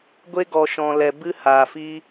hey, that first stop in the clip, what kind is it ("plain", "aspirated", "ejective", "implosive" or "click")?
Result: plain